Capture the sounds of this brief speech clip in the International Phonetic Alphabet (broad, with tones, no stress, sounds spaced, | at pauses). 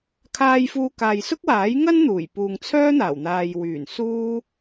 kʰ aː˧ j f uː˧ k aː˨ j s ʊ˥ k̚ w aː˨˥ j ŋ ɐ˥ n n̪ uː˨˩ j p uː˨ ŋ t͡sʰ œː˥ n̪ aː˨˩ w n̪ aː˨ j w yː˨˩ n s uː˥